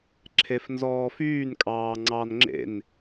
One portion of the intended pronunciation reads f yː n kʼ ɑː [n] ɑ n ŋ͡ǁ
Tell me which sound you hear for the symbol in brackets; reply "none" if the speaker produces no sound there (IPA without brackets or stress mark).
ŋ͡ǀ